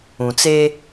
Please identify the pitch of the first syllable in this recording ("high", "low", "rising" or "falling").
low